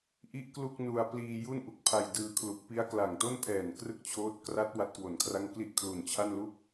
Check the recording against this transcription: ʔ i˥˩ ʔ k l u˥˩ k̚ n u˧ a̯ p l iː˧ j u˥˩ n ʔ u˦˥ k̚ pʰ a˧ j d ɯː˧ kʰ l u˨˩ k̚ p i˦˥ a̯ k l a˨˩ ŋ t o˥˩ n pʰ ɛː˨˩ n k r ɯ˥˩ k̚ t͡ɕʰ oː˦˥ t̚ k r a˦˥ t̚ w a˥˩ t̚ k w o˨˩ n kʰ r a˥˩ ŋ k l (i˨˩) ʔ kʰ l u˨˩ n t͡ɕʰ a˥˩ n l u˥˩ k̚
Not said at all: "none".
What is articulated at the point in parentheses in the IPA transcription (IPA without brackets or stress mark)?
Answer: i˥˩